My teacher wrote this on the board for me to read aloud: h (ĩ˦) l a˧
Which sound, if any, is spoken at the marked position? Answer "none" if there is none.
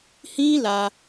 ĩ˦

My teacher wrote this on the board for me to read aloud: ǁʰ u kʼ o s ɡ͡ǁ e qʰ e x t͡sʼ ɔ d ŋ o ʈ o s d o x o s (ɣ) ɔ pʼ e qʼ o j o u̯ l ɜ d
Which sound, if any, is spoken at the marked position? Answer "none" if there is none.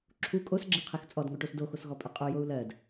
ɣ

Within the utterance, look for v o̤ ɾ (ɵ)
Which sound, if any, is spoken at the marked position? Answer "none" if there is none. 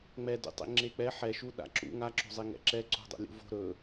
ɵ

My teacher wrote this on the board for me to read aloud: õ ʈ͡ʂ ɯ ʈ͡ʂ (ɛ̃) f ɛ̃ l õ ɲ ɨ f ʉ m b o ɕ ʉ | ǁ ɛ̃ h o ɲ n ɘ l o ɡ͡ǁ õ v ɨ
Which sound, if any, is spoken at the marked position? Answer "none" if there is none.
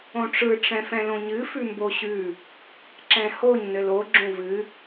ɛ̃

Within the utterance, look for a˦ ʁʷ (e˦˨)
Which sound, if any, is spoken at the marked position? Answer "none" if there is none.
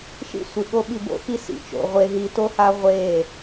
e˦˨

